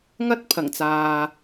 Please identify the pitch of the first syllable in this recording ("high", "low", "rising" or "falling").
high